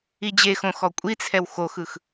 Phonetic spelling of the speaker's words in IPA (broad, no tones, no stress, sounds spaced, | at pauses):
i d͡ʑ e x õ x ɔ kʷʼ i t͡sʰ ɛ w x o x ɯ x